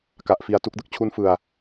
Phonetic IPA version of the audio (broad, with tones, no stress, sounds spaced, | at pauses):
k a˨˩ ʔ f i˨˩ a̯ t u˥˩ k̚ d ɯ˦˥ k̚ t͡ɕʰ u˦˥ n f ɯ˨˩ a̯